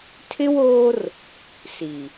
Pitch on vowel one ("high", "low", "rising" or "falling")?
high